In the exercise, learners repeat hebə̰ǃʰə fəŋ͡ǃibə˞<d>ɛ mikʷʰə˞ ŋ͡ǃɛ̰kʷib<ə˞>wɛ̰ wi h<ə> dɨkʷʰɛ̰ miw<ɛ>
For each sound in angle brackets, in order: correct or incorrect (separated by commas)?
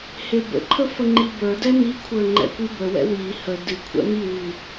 correct, incorrect, correct, incorrect